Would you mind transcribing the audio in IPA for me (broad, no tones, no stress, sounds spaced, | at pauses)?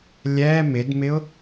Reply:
lʲ ɛ m ɪ d m ɪ ʊ̯